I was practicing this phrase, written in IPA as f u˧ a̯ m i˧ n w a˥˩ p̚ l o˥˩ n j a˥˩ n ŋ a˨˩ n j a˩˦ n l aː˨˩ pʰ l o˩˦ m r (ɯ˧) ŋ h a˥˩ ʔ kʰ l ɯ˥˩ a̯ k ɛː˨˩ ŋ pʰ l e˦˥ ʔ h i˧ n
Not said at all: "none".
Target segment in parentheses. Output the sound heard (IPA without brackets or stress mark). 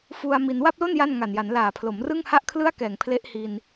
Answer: ɯ˥˩